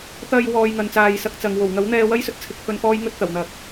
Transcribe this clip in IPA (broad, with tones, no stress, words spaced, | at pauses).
t̪ɐ˧j wɔː˧j ŋɐ˨nt͡saː˨j sɐ˧k̚t͡sɐ˨ŋ wo˨˩wŋɐ˨˥wn̪ɛː˧ wɐ˥jsɵ˧t̚ t͡sʰɪ˧k̚pʰɵ˧nfɔː˥j ŋɵ˧t̚t̪ɐ˨˩w n̪ɐ˨k̚